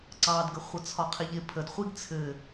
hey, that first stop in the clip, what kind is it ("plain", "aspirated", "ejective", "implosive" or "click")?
click